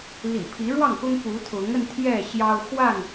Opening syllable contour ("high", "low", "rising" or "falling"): low